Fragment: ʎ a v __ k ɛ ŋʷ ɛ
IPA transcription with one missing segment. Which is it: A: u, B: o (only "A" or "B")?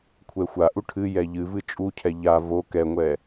B